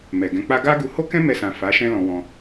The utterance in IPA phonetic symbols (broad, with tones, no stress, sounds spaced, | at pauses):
m ɛ˨ ɡ ɛ̃˧ k͡p a˦ ɡ a˦ ɡ u˧ h o˦ k ɛ̃˦ m ɛ˧ s ã˨ f a˨˦ ʃ ɛ̃˦ l ɔ̃˧ w ɔ̃˧